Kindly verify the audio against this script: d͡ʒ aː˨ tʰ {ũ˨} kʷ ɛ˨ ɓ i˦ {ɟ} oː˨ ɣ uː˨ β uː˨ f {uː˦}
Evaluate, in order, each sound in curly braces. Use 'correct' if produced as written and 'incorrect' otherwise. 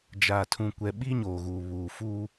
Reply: correct, incorrect: ɲ, correct

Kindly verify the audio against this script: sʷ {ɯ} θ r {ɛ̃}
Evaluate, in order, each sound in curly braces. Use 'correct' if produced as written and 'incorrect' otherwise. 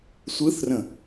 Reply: correct, incorrect: ə̃

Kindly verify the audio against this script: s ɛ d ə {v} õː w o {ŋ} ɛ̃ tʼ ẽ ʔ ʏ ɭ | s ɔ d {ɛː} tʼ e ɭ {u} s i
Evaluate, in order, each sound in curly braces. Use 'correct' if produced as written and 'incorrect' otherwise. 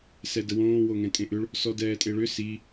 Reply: incorrect: w, correct, correct, incorrect: ʏ

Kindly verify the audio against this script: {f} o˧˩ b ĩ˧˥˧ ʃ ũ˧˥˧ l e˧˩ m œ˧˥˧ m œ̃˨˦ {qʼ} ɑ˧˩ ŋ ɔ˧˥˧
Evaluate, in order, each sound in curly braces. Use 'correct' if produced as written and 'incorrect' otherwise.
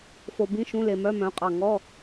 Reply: correct, correct

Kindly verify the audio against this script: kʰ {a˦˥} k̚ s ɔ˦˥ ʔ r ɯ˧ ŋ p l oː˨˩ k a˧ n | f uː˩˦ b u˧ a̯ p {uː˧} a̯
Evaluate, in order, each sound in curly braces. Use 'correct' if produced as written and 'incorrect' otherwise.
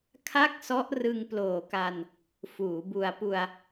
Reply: incorrect: a˥˩, incorrect: u˧

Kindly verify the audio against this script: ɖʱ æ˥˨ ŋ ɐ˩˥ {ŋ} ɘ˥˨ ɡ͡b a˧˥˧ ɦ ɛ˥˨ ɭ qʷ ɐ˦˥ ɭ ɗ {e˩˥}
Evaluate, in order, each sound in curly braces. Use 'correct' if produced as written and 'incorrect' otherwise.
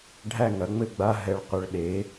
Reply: incorrect: ŋ͡m, correct

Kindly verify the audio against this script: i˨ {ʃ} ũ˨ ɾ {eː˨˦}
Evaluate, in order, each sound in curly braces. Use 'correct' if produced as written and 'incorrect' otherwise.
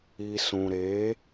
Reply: incorrect: s, correct

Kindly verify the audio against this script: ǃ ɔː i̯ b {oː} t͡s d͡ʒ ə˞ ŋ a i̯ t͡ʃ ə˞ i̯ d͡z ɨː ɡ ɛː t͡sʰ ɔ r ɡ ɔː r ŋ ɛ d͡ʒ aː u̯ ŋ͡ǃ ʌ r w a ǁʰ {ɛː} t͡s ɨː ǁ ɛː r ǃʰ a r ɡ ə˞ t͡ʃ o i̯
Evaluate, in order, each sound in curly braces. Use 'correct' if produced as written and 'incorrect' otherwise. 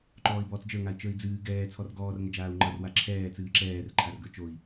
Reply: incorrect: ɔː, correct

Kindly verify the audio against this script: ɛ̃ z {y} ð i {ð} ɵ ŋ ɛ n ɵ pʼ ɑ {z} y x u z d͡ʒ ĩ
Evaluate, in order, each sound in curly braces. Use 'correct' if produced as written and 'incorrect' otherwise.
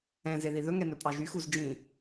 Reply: incorrect: e, correct, incorrect: ʒ

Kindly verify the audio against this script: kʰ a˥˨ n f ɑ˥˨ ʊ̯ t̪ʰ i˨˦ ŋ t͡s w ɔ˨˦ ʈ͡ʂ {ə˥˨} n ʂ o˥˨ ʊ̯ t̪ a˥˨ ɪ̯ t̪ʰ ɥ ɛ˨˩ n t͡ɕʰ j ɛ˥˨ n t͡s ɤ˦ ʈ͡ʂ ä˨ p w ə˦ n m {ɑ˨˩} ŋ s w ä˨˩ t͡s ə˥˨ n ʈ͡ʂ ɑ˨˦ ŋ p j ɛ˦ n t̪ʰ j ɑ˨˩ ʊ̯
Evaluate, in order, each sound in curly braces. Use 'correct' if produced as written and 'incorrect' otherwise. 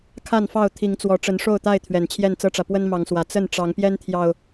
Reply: incorrect: ə˨˦, incorrect: ɑ˨˦

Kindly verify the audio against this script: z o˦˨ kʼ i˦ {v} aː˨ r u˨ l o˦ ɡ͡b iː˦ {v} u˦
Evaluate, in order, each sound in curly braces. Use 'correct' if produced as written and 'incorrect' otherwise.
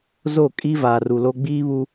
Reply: correct, incorrect: β

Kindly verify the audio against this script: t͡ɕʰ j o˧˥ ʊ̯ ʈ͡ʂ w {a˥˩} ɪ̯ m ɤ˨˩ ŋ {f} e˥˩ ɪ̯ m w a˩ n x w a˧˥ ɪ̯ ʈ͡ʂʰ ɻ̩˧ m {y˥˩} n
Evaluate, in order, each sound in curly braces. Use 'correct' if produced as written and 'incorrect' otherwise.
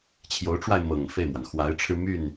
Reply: incorrect: a˧, correct, correct

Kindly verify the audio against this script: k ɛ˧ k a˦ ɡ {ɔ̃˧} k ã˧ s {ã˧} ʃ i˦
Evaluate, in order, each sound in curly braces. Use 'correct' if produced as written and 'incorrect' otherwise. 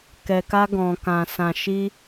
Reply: correct, correct

